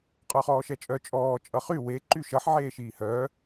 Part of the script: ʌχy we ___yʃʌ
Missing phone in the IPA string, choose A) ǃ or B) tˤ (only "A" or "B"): A